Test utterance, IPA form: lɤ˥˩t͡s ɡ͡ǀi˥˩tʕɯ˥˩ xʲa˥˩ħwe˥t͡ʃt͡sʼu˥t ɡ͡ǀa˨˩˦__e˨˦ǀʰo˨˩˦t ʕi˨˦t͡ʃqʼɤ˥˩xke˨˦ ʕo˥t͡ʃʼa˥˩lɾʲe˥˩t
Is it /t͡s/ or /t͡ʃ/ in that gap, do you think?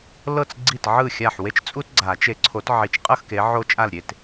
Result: t͡ʃ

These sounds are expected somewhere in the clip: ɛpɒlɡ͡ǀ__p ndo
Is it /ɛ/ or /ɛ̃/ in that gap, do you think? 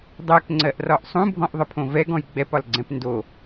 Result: ɛ̃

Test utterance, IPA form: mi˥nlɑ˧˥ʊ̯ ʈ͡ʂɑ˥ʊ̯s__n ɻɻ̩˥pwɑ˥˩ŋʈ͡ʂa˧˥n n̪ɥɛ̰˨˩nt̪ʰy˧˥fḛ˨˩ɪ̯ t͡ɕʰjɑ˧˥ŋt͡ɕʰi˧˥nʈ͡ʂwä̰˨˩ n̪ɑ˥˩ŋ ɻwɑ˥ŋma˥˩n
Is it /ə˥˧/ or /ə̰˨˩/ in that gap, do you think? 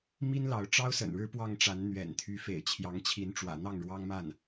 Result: ə̰˨˩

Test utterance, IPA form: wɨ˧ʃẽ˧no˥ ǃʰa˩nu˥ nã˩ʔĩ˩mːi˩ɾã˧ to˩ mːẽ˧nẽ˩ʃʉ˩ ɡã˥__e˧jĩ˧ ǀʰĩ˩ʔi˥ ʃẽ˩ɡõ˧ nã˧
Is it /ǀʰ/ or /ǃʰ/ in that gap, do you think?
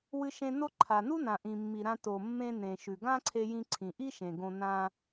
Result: ǀʰ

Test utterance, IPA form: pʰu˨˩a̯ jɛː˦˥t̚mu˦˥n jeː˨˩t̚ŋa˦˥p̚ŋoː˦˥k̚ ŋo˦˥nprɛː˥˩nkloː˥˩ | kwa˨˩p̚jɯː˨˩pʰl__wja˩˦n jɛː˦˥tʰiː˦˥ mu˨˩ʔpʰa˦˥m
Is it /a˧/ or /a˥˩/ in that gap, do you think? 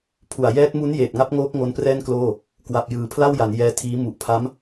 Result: a˥˩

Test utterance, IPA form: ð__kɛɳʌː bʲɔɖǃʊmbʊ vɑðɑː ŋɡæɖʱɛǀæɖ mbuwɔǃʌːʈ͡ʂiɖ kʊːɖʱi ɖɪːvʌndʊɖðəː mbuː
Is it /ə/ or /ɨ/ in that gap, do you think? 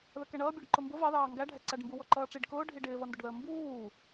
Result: ə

